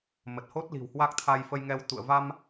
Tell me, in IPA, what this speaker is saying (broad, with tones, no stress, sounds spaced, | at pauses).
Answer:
m ə˨˩ t̚ h o˦˥ t̚ l i̤˨˩ w h w a˦˥ k̚ t̪ʰ a˧ j f ə˧ j ŋ ɛ˧ w t̪ ṵ˧˨ ə̯ v a˧ m